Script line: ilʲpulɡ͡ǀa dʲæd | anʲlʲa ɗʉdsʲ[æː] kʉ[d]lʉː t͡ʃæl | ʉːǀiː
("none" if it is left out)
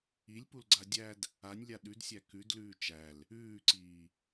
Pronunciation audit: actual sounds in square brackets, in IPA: æ, d

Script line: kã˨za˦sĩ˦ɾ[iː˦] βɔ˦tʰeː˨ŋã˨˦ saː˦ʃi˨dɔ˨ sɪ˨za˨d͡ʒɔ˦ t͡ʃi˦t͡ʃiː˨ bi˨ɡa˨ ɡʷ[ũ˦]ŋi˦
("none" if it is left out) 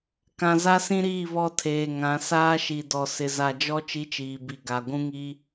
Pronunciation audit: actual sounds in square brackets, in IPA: iː˦˨, ũ˦

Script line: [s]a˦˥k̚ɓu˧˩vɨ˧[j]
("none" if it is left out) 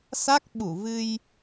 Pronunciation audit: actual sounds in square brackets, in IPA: s, j

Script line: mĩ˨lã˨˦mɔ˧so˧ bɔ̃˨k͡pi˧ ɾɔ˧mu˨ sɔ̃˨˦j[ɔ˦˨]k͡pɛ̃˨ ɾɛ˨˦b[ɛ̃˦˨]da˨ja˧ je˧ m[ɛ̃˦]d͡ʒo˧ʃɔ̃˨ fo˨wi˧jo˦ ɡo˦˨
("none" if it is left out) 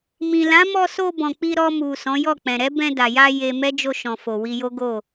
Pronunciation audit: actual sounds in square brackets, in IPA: ɔ˦˨, ɛ̃˧, ɛ˦

